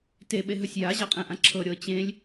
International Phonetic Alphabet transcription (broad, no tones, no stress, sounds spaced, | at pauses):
t e ɓ e ɦ ɵ sʲ j a ʑ a qʼ ɛ̃ ʔ ã ǁʰ ɤ ɾʲ ɤ t͡ɕ ẽ lʲ